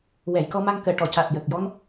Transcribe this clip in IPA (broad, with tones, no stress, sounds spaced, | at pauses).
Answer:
w ɛ˨˩˨ j k ɔ˧ m a˧ ŋ k əː˨˩˨ ʈ ɔ˨˩˨ c a˨˩ t̚ j ə˨˩ k̚ j ɔ˧ n